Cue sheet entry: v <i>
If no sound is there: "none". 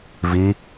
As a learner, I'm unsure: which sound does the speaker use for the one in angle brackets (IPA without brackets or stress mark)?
i